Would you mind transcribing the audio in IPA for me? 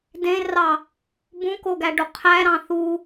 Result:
d ẽ r ɑ | b ũ k o ɡ æ ɖ o qʰ æ ɾ ɑ̃ θ u

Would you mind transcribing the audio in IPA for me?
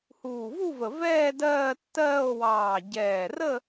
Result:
h uː˨˩ v u˥˧ v ə˨˩ v ɛː˥˧ d ɜː˥˧ tː ɜː˥˧ o̯ w ɑː˨˩ ɟ ɛː˨˩ r ə˥˧

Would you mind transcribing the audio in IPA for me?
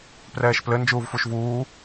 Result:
p r ɛː ʃ p l ɘ n d͡ʒ uː v f u ʃ v uː

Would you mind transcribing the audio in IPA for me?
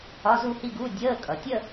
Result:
ɒ˧˥˧ z u˥˧ h i˥˧ ɡ u˧˥˧ dʲ əː˧˥˧ kʼ ʌ˩ tʲ ə˥˧

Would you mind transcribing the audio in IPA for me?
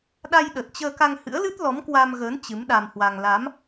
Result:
ɗ a˧ j ɗ ə˨˩ t̚ t͡ɕ əː˧ k a˧ ŋ h ɨ̰˧˥ ə̯ l ɨ˦˥ t̚ l ɔ˨˦ m k w a˧ m ɣ əː˨˦ n t͡ɕ ɨ˨˦ m ɗ a˧ m h w a˧ ŋ l a˨˦ m

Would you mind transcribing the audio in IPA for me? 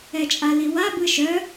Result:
ɛ t͡ʃʼ a l i w a b ɯ ʃ œ

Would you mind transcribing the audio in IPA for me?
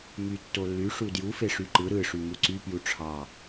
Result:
m y tː o lː y ʂ u d j u f e ʂ y ǃ ɯ ɾ ɯ ʂ y m u ǀ y p j u ʈ͡ʂʰ ɑ

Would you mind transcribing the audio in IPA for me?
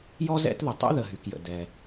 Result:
j ɔ˥ z ɛ̰˥ t ð ə˩ tˤ ɛ̰˥ ð ə˩ ɦ y˩ k j ə̰˩ d ɛ˩

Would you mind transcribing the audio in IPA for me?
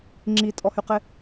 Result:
ŋ͡ǁ i tʼ ɔ h y q ɪ

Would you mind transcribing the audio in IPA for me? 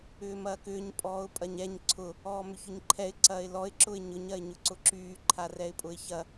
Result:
ʏː m ɐː k ʏː ɲ pʼ ɔː ʊ̯ pʼ ɐ ɲ ɛ ɲ ǀʰ ʊ | ɔː m ʏ ç ʊ ɲ ǃʰ ɛ ɪ̯ ǀ ɐː ɪ̯ l ɔ ɪ̯ ǁ ʊ ɪ̯ ɲ ʊ ɲ ɐ ɪ̯ ɲ ʊ ǀ ʊ ǁ yː ǃʰ a r ɛ ɪ̯ pʼ ʊ ɪ̯ ç ɐ

